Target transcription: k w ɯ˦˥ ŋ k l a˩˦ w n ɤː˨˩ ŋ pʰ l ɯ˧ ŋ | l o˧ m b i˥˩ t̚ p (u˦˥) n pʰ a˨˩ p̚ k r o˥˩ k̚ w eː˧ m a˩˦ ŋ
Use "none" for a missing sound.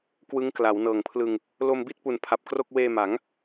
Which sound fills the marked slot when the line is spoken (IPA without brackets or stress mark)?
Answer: u˨˩